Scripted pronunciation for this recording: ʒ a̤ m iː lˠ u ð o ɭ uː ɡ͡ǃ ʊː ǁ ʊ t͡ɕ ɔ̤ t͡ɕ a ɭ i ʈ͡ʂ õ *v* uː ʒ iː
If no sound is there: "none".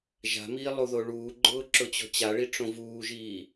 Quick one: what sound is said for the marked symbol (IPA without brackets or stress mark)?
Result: v